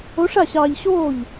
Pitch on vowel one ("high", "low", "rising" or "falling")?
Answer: rising